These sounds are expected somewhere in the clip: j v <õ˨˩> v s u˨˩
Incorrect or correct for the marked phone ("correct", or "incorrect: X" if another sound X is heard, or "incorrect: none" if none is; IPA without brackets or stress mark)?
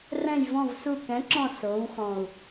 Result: incorrect: ɔ̃˨˩